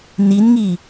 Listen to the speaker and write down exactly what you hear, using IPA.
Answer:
n i n ŋ i

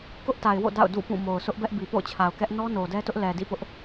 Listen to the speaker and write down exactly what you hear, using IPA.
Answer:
k ʊ˦ ʔ t a˨ ɪ̯ w o̰˦˨ d a̰˦˨ ʊ̯ d ṵ˦˨ p ũ˦˨ m o˨ ʊ̯ sʰ ʊ˦ ʔ b ɛ˦ ʔ b i˨ p o̰˦˨ ʊ̯ t͡ɕʰ a˨ ʊ̯ k ɛ˦ ʔ n ɔ˦ n o˨ d ɛ˦ t ʊ˦ ʔ l ɛ˨ d ḭ˦˨ p ʊ˦ ʔ

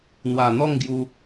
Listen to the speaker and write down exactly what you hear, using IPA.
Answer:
n̪ w a˨˩ n̪ ɔ˥˧ ŋ ɡ j u˧

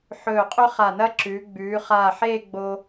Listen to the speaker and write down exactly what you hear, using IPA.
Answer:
ħ ɵː˧˩ qʼ ɵ˥ χ a˧˩ n ɐ˥ ǁ ʉː˩˧ ɡ͡b ʉː˩˧ χ aː˧˩ ħ eː˥˧ ɡ͡b o˧

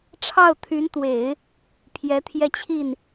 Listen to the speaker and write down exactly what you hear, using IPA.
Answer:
ʈ͡ʂʰ ɑ˥˩ ʊ̯ t̪ʰ y˧˥ n t̪ w e˨˩˦ ɪ̯ | pʰ j ɛ˧˥ t̪ʰ j ɛ˥˧ t͡ɕʰ i˥˩ n

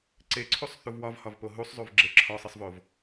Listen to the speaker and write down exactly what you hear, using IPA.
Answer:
ǀ e ǀʰ u sˤ θ u v w ɒ v h ɒ v p o ɦ u sˤ zˤ u v ɡ͡ǁ e ǁʰ ɒ sˤ e sˤ v o v

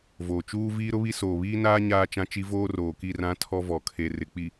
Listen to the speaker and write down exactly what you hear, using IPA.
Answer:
v oː˨ t͡ʃ uː˦ v iː˦ ɾ ʊ˦ β i˦ s oː˨ β iː˦ n aː˦ ɲ aː˦ t͡ʃ ã˦ t͡ʃ i˦ v oː˦ r oː˨ k i˦˨ r ã˦ tʰ ɔ˦ v ɔ˨ kʰ e˨ r ɪ˨ k͡p i˨

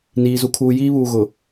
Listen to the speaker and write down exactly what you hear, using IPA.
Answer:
n iː˨ z u˨ kʰ uː˨ j iː˦ β uː˨ ɣ ʊ˨

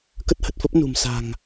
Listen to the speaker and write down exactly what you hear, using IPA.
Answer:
k ə˦˥ t̚ h ə˨˩ t̚ f ə˦˥ p̚ n ṳ˨˩ m s a̤˨˩ ŋ

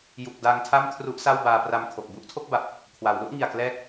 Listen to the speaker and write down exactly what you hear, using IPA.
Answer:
j u˨˩ k̚ d a˧ ŋ tʰ a˥˩ m kʰ r u˦˥ ʔ s a˥˩ w b aː˧ p r a˧ m kʰ o˨˩ k̚ b u˦˥ ʔ tʰ o˥˩ k̚ b a˨˩ p̚ | kʰ w a˩˦ w l u˥˩ ʔ ŋ i˨˩ a̯ k l ɛː˦˥ k̚

